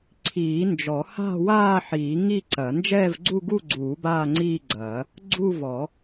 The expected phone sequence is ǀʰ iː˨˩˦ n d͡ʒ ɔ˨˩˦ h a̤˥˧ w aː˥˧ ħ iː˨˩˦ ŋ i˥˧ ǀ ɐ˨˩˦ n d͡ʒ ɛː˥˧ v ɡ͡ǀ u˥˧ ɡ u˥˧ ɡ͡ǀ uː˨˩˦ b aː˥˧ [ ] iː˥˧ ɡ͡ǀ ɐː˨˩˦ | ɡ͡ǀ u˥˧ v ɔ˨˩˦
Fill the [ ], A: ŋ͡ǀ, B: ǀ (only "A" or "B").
A